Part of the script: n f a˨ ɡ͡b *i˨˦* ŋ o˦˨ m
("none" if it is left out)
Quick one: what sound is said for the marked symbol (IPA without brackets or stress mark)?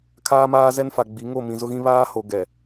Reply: i˨˦